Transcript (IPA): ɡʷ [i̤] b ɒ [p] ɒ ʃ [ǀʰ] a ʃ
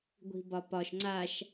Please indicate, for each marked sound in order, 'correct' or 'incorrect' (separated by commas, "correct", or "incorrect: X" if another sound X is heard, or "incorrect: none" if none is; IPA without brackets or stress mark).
correct, correct, incorrect: ŋ͡ǀ